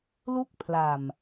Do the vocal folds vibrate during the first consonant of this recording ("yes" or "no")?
yes